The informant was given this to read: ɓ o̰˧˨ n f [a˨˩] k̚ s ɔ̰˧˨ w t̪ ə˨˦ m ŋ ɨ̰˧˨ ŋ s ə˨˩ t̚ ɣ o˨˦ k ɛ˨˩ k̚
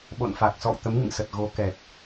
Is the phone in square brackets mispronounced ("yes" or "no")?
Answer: no